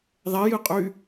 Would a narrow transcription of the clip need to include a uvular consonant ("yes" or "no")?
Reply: yes